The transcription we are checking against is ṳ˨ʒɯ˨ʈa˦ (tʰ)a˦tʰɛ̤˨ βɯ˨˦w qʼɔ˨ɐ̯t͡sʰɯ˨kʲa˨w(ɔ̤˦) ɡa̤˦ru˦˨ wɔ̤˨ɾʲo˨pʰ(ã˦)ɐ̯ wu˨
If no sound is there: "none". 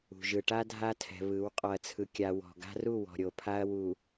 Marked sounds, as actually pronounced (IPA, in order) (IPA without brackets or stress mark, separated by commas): dʱ, ɔ̤˨, a˦